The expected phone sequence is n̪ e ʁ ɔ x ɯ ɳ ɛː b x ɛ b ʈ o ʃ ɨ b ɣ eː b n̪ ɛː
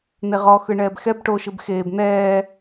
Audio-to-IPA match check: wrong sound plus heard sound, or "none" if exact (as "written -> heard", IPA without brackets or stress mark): ɣ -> x